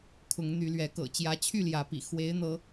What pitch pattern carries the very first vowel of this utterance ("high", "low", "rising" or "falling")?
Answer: rising